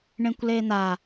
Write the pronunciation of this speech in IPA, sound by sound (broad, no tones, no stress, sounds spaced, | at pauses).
ɳ ẽ kʷ l eː n̪ a